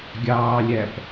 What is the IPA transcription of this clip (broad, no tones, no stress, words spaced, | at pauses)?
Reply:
ɡʲɑːlʲæp